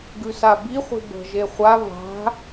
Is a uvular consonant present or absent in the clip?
present